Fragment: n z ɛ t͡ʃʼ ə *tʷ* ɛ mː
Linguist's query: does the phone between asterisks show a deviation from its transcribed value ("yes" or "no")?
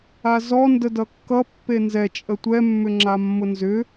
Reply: no